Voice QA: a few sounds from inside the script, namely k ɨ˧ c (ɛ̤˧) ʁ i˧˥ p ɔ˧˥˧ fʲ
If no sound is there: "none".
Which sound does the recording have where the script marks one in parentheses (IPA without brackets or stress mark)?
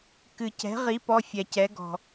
ɛ̤˧˥